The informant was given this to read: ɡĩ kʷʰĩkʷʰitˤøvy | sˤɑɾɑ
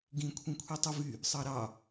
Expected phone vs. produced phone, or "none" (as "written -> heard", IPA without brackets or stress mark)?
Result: ø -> u